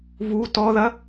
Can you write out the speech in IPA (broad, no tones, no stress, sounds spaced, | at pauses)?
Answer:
v u t ɔ ð ɐ